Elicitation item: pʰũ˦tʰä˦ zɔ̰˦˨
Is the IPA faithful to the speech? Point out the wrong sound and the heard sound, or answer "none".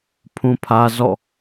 tʰ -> pʰ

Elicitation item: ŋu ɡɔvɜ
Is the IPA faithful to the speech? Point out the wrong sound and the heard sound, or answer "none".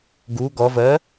ŋ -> ɡ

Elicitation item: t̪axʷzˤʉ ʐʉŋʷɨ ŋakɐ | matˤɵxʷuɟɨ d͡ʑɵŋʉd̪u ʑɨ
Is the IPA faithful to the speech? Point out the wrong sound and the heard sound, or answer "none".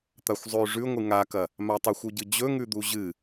none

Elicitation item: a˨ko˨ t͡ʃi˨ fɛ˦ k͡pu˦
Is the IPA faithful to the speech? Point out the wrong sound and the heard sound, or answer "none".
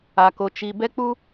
f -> b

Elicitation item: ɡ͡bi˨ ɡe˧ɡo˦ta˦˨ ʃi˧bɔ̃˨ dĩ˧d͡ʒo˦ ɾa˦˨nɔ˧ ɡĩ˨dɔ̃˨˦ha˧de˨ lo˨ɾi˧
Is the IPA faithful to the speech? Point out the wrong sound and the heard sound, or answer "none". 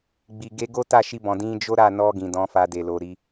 h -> f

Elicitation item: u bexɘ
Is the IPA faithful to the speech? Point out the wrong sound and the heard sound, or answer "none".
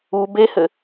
x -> h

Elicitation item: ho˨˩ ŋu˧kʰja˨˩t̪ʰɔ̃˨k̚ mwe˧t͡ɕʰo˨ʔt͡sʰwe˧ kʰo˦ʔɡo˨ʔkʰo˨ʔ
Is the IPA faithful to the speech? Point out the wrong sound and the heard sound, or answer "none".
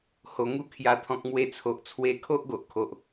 t͡ɕʰ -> t͡sʰ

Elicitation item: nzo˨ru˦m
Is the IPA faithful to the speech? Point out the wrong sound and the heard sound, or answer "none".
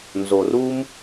none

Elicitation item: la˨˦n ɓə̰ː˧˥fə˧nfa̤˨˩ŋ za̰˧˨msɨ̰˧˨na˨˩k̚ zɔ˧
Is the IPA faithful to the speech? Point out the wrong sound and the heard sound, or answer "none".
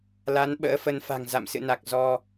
none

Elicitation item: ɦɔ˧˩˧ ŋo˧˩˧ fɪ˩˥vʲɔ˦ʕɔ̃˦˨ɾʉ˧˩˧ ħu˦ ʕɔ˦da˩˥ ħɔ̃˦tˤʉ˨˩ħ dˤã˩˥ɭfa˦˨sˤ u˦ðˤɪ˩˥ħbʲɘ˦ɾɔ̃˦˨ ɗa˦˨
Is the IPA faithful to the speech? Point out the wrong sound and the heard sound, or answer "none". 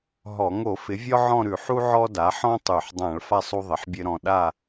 ã˩˥ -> ã˧˩˧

